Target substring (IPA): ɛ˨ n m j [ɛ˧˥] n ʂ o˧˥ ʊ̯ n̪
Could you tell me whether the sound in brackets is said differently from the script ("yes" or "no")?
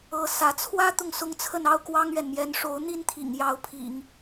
no